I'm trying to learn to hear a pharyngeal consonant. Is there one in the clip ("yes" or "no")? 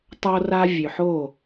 yes